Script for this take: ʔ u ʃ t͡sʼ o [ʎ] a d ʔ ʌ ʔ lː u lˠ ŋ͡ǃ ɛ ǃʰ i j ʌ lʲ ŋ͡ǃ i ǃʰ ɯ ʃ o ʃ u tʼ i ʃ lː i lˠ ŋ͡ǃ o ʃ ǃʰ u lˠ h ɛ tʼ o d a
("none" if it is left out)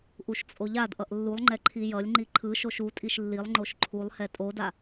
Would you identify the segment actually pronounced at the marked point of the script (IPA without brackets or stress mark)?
ʎ